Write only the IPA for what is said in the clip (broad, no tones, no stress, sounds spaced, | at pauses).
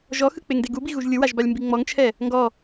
ʒ ɔ x ɯ k͡p e ŋ d e ɡ u b i ɣ u ʒ lʲ ɯ w a ʒ b a lʲ m b i ŋ͡m ɔ ŋ t͡ʃʰ ɛ | ŋ ɡ ɔ